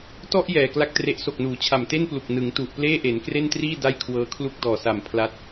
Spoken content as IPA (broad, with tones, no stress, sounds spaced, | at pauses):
t ɔ˥˩ ʔ j ɛː˨˩ k l a˥˩ k̚ t r e˦˥ ʔ s o˨˩ k̚ n uː˩˦ t͡ɕʰ a˨˩ m t e˥˩ n p l u˨˩ k̚ n ɯ˩˦ ŋ t u˨˩ ʔ p l eː˥˩ ʔ e˩˦ n k r e˥˩ n t r iː˥˩ d a˥˩ j kʰ w ɤː˦˥ kʰ l u˥˩ k̚ d ɔː˨˩ s a˨˩ m pʰ l a˦˥ t̚